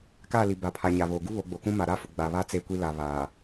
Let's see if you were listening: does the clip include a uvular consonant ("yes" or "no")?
no